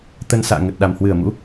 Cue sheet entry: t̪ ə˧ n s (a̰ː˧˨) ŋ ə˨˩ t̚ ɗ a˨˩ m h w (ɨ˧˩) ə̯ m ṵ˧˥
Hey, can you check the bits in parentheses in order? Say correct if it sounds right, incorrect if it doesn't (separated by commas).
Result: correct, correct